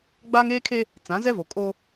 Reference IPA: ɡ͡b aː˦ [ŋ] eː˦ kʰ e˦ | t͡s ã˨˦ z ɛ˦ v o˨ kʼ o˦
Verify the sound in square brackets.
correct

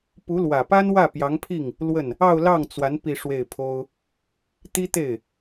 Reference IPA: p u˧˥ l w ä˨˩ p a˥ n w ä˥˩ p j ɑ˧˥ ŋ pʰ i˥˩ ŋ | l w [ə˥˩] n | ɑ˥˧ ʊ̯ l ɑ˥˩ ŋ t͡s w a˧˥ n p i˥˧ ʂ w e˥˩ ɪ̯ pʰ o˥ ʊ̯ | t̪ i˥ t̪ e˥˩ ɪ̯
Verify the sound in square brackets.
correct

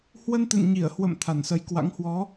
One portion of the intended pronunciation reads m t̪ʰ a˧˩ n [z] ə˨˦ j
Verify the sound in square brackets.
incorrect: s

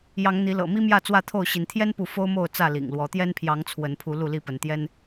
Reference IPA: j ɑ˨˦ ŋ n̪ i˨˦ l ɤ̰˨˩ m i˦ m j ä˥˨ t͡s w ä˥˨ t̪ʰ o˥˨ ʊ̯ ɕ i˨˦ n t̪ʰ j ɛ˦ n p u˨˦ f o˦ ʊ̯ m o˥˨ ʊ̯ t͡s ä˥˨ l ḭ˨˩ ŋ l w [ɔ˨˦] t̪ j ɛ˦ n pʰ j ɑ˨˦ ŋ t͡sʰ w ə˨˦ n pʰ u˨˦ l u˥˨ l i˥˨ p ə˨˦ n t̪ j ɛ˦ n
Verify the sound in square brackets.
correct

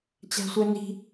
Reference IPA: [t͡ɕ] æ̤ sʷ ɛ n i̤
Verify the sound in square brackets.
correct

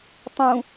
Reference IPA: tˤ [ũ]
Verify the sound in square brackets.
correct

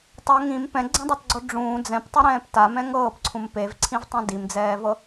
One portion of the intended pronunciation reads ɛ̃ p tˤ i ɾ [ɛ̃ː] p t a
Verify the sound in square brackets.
correct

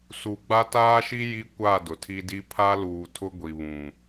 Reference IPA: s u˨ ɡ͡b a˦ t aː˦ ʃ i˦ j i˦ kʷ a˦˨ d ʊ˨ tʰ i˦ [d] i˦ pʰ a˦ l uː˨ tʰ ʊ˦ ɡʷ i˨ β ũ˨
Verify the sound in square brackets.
correct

